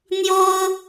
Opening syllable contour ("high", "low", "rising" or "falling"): high